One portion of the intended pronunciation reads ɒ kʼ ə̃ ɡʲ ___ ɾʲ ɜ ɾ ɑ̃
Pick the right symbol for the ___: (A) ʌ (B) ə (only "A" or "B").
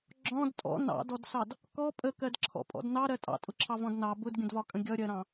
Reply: A